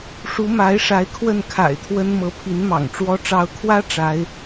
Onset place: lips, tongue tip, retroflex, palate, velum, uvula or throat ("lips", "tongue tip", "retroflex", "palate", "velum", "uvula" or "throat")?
retroflex